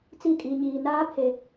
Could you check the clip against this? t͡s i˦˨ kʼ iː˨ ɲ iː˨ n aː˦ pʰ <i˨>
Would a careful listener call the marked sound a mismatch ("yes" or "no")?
yes